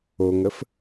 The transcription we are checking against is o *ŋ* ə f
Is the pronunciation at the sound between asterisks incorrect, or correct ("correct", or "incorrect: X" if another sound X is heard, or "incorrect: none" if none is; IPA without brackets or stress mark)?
correct